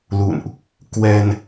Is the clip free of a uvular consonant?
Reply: yes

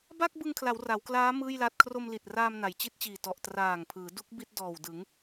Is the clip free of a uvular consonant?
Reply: yes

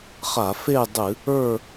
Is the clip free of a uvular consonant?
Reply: no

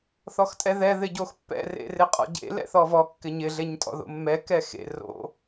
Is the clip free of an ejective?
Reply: no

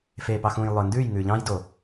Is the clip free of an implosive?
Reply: yes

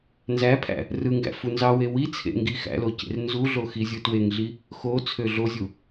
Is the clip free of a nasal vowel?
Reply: yes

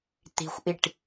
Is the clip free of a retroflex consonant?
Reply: no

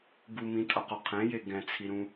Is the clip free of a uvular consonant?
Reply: no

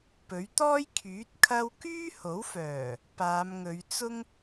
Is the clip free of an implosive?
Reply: yes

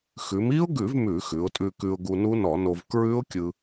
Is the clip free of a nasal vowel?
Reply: yes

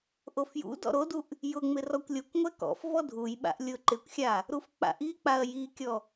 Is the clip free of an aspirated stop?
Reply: yes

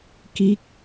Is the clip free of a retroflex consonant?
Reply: yes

